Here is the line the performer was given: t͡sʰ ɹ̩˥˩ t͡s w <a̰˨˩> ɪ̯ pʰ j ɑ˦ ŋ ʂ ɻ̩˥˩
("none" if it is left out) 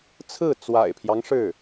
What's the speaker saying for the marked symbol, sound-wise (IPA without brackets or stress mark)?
a̰˨˩